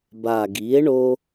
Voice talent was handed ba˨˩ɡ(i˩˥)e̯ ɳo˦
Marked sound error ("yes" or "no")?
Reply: no